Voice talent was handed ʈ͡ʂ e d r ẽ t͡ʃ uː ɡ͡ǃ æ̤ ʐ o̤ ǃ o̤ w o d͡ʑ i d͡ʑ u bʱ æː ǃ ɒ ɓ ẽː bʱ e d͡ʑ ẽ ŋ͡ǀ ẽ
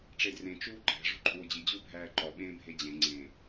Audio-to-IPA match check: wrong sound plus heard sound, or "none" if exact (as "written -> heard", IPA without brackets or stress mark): none